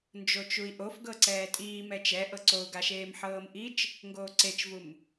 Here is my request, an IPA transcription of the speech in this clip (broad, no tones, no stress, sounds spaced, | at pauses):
n d͡ʒ o t͡ʃ u i̯ ʔ o f ɡ ɤ ǀ ɛː tʼ iː m ɛ t͡ʃ ɛ ʔ ɤ ǀ o u̯ ɡ a ʃ eː m ħ ɤː m ʔ i t͡ʃ | ŋ ɡ oː ǀ e t͡ʃ v u m